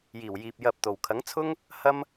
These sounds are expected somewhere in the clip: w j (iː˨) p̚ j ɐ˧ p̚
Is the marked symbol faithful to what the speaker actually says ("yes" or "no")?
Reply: yes